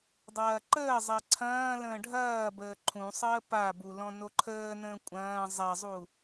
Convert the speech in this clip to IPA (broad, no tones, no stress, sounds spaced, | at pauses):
dˤ ɐː ǃ əː zˤ ɛ ǀʰ ɐ̃ː l ə̃ː ɖʱ ɐː b əː ǃʰ ũ sˤ əː p a b u l ɔ̃ n o ǃʰ əː n ə̃ː kʷʼ ɐ̃ː zˤ ɛ zˤ u